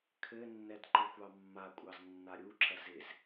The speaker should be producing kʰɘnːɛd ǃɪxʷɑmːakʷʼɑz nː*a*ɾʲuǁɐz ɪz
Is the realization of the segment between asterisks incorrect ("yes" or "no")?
no